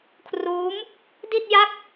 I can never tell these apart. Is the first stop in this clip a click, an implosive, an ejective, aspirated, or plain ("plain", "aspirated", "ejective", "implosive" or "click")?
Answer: aspirated